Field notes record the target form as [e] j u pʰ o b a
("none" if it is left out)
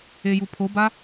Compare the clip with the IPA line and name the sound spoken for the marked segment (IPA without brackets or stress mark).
e